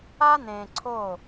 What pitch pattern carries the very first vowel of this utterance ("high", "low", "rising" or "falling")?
high